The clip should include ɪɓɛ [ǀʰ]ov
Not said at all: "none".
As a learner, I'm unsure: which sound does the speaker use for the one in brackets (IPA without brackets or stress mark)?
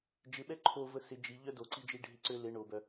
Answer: ǃʰ